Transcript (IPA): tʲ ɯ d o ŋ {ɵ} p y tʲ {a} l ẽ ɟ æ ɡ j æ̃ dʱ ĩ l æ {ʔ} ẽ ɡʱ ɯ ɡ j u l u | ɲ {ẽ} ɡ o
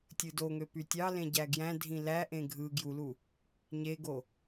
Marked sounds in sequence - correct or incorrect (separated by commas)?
incorrect, incorrect, correct, incorrect